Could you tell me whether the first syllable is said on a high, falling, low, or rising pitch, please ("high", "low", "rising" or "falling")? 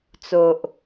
low